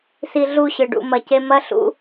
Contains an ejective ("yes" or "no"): no